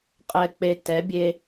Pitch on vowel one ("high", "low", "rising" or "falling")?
low